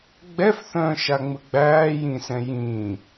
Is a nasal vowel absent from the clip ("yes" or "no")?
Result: no